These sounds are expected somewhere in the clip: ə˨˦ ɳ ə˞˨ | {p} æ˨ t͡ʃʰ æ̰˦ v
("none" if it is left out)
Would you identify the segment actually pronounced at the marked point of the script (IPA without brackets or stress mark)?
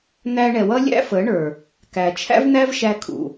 k